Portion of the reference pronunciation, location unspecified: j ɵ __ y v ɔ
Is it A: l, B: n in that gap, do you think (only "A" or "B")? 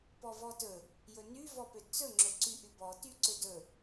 B